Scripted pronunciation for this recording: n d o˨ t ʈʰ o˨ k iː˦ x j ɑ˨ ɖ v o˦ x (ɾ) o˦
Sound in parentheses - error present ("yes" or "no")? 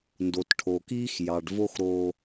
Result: no